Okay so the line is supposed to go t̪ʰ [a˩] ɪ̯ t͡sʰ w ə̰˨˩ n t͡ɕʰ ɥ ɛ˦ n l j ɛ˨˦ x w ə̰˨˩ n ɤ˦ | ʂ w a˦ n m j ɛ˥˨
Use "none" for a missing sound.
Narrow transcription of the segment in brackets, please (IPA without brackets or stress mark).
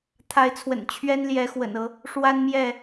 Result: a˨˦